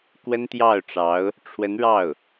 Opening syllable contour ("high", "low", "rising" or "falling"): high